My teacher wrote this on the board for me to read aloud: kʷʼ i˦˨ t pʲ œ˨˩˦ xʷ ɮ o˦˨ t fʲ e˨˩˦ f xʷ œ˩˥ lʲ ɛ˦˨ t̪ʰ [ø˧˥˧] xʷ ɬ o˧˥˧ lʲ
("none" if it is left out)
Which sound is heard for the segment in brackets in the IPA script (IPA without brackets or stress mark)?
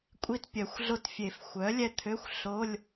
ø˧˥˧